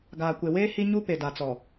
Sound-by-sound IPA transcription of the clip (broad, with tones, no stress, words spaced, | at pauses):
ɡaː˨kʷe˨weː˦ hi˦ɲu˦pe˨ da˨t͡sɔ˨